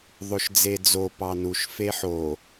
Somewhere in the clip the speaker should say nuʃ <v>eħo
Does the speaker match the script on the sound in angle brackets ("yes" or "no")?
no